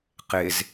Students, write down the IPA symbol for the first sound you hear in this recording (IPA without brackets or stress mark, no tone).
q